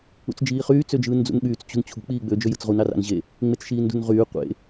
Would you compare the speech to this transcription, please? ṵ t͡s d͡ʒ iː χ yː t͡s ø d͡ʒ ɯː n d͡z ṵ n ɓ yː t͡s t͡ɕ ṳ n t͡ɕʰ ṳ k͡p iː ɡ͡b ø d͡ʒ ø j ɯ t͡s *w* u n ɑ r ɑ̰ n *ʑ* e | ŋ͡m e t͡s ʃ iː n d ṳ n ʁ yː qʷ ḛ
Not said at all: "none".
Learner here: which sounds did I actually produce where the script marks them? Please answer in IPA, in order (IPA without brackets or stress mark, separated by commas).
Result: ʁ, ʑ